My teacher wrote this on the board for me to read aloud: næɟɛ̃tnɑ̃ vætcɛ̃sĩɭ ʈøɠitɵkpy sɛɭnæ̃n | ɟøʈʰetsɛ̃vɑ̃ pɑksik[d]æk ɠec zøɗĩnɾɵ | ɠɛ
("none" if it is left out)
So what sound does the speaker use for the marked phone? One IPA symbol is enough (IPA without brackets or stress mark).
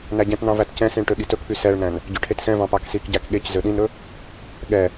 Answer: ɟ